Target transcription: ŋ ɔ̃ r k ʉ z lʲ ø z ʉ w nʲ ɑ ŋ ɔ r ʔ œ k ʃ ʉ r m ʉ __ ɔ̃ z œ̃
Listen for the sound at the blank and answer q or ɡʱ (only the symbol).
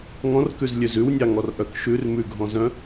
ɡʱ